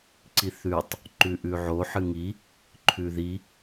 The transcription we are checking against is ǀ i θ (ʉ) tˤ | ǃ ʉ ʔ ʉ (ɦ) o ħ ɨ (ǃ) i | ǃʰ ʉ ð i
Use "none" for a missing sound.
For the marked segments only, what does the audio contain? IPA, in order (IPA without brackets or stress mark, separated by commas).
ʉ, ʕ, ŋ